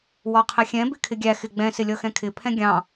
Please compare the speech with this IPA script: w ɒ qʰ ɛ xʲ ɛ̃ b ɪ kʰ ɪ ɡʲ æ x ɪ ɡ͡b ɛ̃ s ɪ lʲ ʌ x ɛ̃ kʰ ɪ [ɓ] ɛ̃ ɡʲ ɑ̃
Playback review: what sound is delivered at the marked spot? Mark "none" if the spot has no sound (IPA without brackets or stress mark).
pʰ